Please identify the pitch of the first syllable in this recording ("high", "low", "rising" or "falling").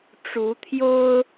rising